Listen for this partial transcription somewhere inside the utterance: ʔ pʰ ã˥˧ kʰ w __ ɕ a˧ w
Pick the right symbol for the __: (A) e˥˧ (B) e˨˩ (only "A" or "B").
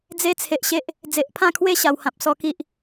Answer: A